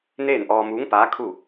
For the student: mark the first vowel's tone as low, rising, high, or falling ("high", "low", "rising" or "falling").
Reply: falling